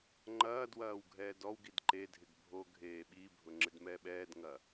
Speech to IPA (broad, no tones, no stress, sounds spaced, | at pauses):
ŋ͡ǃ ɐː d w ɐː w ɡʱ ɛː d ɔ w ɡ i d ǃ e dʱ ɪ ɡ bʱ o ɡʱ eː ɓ i bʱ ʊ ŋ͡ǁ ɪ d m ɛː ɓ ɛː d ŋ ɐ